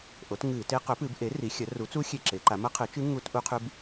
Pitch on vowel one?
rising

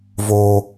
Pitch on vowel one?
high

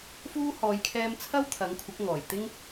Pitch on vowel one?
high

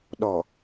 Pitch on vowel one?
low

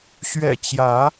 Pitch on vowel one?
low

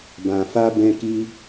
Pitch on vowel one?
low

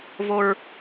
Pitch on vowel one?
high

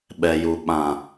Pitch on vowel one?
low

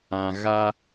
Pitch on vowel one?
low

